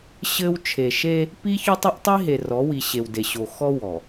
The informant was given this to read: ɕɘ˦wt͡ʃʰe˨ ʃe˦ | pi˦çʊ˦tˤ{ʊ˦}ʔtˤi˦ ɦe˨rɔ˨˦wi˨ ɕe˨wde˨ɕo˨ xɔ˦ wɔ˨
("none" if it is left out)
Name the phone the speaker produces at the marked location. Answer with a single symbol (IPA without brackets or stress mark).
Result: ʊ˦